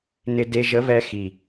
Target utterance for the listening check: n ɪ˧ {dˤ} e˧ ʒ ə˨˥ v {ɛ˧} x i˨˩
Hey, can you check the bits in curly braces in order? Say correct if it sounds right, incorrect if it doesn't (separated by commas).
incorrect, correct